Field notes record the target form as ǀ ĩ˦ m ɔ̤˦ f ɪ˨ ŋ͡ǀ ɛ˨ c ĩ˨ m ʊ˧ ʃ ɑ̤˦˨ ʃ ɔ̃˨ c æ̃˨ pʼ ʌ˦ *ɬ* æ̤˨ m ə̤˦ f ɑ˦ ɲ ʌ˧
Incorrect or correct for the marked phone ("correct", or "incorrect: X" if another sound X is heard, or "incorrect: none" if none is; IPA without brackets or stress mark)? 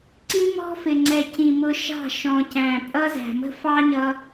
incorrect: z